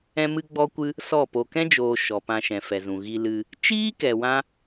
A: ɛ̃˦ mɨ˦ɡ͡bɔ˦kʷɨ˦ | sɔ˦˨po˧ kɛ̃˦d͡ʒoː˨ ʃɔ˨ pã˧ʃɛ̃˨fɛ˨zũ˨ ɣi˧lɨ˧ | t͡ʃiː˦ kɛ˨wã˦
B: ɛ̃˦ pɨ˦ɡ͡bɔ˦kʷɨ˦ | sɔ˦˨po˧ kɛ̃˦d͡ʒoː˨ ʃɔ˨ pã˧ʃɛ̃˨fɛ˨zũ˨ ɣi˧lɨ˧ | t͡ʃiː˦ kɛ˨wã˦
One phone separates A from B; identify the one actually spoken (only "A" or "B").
A